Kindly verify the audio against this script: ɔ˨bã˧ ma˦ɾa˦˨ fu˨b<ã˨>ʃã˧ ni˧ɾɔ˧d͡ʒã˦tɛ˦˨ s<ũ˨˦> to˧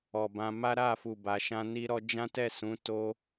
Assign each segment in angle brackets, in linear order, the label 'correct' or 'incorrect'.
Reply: incorrect, correct

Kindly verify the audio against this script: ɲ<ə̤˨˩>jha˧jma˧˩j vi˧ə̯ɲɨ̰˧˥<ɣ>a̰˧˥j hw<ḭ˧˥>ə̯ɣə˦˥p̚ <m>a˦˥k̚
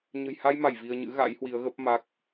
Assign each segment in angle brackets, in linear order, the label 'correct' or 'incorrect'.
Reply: correct, correct, incorrect, correct

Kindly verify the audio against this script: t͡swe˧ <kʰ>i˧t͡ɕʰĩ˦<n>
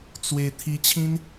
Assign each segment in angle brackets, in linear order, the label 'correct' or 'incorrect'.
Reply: incorrect, correct

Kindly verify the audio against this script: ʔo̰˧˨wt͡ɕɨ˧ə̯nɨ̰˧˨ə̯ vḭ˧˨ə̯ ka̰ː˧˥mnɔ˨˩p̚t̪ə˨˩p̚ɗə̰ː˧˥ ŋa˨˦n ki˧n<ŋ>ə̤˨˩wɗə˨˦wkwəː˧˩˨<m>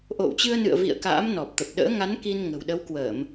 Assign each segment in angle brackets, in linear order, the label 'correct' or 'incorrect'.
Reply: correct, correct

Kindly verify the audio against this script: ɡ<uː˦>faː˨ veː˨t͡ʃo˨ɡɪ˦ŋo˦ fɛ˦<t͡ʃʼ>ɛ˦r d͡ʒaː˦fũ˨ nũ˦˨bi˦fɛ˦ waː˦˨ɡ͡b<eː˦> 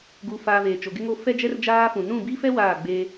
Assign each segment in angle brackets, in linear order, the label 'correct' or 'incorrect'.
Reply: incorrect, incorrect, correct

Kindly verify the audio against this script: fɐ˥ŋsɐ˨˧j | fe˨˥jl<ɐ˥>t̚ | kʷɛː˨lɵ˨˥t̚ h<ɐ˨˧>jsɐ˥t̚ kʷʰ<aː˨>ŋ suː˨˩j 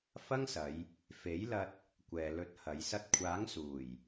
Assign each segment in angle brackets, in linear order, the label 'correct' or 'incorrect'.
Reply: incorrect, correct, incorrect

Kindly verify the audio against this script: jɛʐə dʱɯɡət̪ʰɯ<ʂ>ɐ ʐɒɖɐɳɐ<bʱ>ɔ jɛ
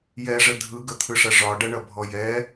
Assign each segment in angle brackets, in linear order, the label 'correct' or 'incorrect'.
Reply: correct, correct

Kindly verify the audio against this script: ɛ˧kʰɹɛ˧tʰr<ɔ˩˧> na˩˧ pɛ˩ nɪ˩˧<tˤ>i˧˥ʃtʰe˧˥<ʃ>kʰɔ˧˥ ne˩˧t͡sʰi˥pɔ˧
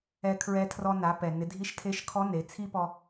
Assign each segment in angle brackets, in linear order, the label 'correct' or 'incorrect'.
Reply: incorrect, incorrect, correct

